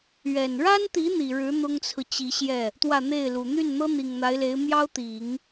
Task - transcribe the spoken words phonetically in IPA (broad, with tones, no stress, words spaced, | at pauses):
ɥɛ˨˩n ɻa˥nt̪i˧˥ n̪i˨˩ɻɻ̩˧˥ n̪ʊ˥ŋt͡sʰɹ̩˨t͡ɕi˧˥ɕjɛ˥˩ | t̪wä˥˧n̪e˥˩ɪ̯lu˨˩ n̪y˥˩nn̪ɤ˥ n̪i˨˩ŋn̪a˧˥ɪ̯le˧˥ɪ̯ mjɑ˥ʊ̯ t̪i˨˩˦ŋ